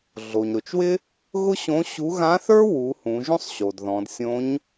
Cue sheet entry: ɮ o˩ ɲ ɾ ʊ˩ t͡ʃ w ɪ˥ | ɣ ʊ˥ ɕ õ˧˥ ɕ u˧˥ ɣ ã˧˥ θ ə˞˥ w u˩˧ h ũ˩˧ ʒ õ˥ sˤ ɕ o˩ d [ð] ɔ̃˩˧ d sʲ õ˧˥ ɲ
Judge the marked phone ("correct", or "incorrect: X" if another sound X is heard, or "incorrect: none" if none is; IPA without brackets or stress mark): correct